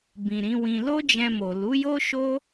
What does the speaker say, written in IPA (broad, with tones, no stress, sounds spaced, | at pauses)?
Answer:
b ĩ˨ ɾ ĩ˨˦ w ĩ˧ l o˦ d͡ʒ ɛ̃˧ m o˨ l u˨˦ j o˦ ʃ o˦